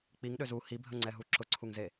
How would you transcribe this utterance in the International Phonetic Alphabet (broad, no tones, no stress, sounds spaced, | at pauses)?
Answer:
k͡p i ŋ ɗ ø z u h i bʱ ə ŋ͡ǀ ɛ ɦ u ǁ ʊ ǀʰ u ŋ z e